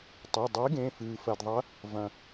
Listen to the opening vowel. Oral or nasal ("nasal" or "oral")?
oral